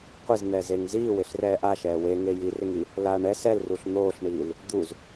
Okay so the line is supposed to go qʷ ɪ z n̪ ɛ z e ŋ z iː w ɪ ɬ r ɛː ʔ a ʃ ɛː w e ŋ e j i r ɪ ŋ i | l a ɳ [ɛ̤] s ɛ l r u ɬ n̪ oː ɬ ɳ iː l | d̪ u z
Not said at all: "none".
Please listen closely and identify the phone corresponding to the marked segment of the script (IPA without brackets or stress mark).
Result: ɛ